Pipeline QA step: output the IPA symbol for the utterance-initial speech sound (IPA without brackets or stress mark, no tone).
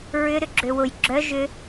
ɹ